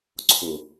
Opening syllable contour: low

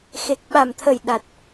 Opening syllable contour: low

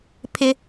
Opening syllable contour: high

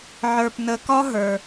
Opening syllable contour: low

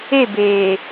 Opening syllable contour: falling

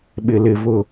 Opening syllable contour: low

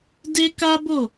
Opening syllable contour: high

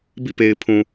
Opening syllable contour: falling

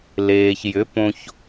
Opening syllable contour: low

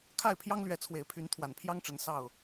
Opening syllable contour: falling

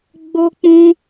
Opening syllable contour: high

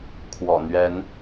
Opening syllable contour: low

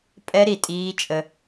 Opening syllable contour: high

